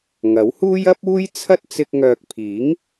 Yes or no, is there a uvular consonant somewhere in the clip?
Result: no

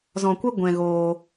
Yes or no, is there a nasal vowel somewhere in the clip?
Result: yes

